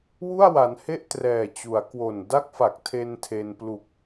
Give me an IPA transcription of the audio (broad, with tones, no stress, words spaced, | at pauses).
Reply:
wu˥˩a̯wa˩˦nhe˥˩ʔ trɛː˨˩t͡ɕu˩˦a̯kwo˨˩n da˥˩k̚fa˨˩k̚tʰe˧n tʰe˧n plu˨˩k̚